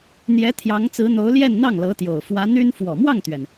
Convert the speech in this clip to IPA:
n̪ j ɛ˧˥ t̪ʰ j ɑ˧˥ ŋ t͡s ɹ̩˧˥ n̪ o˧˥ ʊ̯ l j ɛ˥˧ n n̪ ɑ˥˩ ŋ l ɤ˧˥ t̪ j o˨˩ ʊ̯ f w ä˧˥ n̪ y˥ n f w ɔ˨˩ m w ɑ˥˩ ŋ t̪ ɥ ɛ˩ n

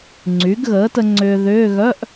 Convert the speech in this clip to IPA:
ŋ͡ǀ y˩˥ ɡ ɣ əː˩˥ t ə˧ ŋ͡ǀ ʏː˧ ð ʏː˧˥˧ ɣ œ˧˥˧ ʔ

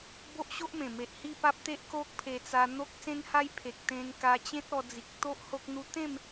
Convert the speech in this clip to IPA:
b o˦ ʔ ɕ o˦ ʔ m ẽ˨˩ m e˨ ʔ h i˥˧ p a˦ p̚ t̪ e˦ ʔ k o˦ k̚ pʰ e˧ t͡s a˧ n̪ o˦ k̚ s ẽ˦ n h a˦ j pʰ e˨ k̚ t̪ ẽ˧ n k a˧ t͡ɕ ẽ˦ t̚ ɔ˧ d͡z i˨ k̚ t̪ o˦ ʔ h o˦ k̚ n̪ u˦ t̪ ẽ˥˧ m

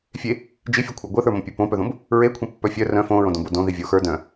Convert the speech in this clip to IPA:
fʲ e | d͡ʒ i fʲ o kʷʰ ə˞ ɡʷ e θ ə˞ m õ pʲ ə˞ p õ p œ ð õ b | ɹ e kʷʰ ẽ pː œ fʲ œ r œ̃ f õ ɹ õ d õ b o d õ ð i vʲ o x ə˞ d œ̃

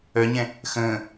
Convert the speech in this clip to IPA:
œ ɲ ɛ̃ | x ə̃ː

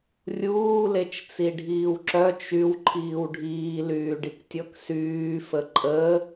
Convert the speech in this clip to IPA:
rʲ uː l e t͡ʃ t͡s i ɖʱ iː w ǁ œ t͡ʃ y w ǃʰ iː w ɖʱ iː l yː ɖ i k tʲ ɔ k s yː f ə ǃʼ ə

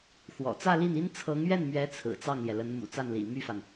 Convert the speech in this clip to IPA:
x w ɔ̰˨˩ t͡s ä˥˧ l i˥˩ n i˥ n t͡sʰ ɤ˧˥ ŋ ɥ ɛ˥˩ n m ɥ ɛ˧˥ t͡sʰ ɹ̩˨˩ t͡s ɑ˥˩ ŋ l j ɛ˩ l ə˧˥ n m ṵ˨˩ t͡s a˥˩ n l ḭ˨˩ m y˥˩ f a˩ n

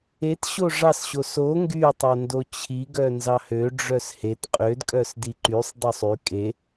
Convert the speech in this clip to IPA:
e t ɕ o ʐ ɑ s ɕ o s o ŋ ɡ y tˤ o n d o t͡ɕʰ i ɡ œ n z ɑ h ø ɖ͡ʐ œ s h e t qʼ ø d kʼ œ s d i ǃ y sˤ dˤ o sˤ y kʼ e

